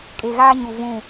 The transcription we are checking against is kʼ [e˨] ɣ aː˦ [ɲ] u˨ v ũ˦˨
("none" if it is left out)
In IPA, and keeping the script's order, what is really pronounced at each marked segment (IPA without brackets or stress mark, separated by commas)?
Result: e˨, ɲ